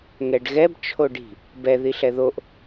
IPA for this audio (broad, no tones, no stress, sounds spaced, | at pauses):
ŋ ɛ ɖ ɣ ɛ b t͡ʃʰ o ɖ i̤ | b ɛ ð i ɬ ɛ ð o ʔ